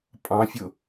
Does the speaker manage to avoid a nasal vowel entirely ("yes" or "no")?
no